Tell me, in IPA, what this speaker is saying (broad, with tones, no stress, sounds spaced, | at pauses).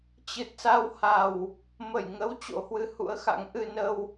t͡ɕ ɨ˨˩ t̚ s a˧ w h a˨˩ w | m ə˧˩ j ŋ ə˨˦ w t͡ɕ o̰˧˥ h w ɨ˨˦ h ṵ˧˥ ə̯ x a̰˧˥ ŋ ʔ ɨ˧ n ə˧ w